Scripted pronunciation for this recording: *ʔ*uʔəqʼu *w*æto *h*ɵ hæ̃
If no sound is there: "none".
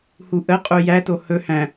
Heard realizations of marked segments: h, j, h

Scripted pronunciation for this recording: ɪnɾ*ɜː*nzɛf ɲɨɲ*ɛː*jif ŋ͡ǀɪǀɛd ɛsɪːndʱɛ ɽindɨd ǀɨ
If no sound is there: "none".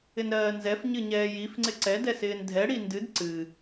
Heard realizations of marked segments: ɜː, ɛː

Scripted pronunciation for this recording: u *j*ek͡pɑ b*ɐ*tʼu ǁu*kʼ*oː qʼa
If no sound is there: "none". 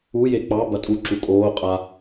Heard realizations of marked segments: j, ɐ, kʼ

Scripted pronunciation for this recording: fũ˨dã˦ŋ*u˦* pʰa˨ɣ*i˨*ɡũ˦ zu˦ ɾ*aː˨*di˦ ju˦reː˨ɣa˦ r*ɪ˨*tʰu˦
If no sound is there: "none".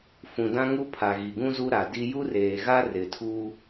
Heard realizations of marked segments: u˦, i˨, a˨, ɪ˨

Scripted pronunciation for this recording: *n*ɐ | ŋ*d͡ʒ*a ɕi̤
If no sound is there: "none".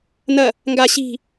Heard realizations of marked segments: n, ɡ

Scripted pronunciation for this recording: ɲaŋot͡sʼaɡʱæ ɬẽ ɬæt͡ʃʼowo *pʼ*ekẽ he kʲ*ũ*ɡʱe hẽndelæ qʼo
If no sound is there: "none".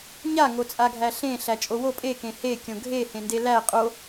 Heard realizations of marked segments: pʼ, õ

